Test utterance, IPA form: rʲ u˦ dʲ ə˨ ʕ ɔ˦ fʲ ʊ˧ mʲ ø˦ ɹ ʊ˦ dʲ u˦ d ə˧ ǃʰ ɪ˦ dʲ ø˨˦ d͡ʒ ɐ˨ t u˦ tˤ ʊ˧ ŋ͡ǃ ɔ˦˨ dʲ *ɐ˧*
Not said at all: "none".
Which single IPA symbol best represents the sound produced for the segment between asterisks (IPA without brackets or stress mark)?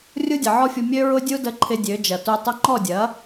ɐ˨˦